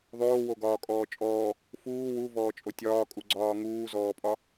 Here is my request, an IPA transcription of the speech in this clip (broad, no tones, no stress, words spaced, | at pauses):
ðˤoːwoɡɒːkʼɔː t͡ʃʼɔː | fuː wuvɔːt͡ʃʼo tʲɒːkʼuɡ͡ǀɒː ŋuːzɔːpʼɒ